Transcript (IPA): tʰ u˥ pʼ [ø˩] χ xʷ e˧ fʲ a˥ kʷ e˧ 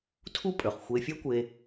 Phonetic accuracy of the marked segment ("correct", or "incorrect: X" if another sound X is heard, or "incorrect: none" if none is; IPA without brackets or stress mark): correct